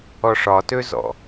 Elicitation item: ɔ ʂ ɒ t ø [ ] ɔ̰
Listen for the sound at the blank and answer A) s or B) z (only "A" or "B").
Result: B